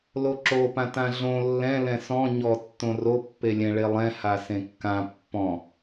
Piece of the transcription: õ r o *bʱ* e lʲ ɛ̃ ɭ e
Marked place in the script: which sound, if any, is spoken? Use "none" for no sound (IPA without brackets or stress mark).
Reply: pː